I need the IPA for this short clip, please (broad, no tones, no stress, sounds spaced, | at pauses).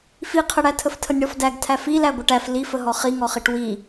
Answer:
f i qʰ ə ɽ æ tʰ ə f tʰ ə nʲ ɽ ɔ f d æ ɡ tʰ æ f i l æ ɡʷ ə ʈ æ f l i f ə ɦ ɔ χ i ŋ ɔ χ i ʈ w i